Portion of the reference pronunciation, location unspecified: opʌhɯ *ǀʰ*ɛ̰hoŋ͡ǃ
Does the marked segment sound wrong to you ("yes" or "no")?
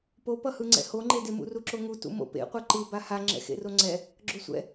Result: yes